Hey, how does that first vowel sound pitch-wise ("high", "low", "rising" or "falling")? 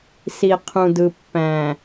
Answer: low